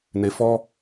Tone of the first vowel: high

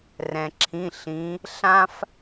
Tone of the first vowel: low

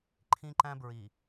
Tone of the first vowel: high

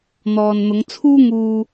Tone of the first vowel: low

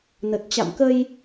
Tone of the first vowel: low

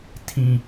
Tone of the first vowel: high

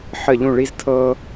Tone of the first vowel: falling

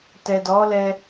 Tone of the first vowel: low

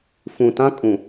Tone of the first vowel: low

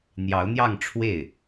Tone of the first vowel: rising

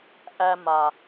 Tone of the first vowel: high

